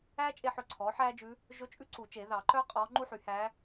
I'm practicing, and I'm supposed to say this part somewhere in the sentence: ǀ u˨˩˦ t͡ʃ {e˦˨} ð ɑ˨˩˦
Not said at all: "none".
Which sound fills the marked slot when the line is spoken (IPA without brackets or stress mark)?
e˨˩˦